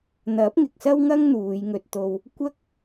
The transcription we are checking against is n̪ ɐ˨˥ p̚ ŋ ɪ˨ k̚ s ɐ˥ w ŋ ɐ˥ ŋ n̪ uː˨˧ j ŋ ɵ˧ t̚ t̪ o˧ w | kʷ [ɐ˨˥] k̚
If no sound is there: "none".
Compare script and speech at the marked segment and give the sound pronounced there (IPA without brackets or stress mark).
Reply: ɐ˥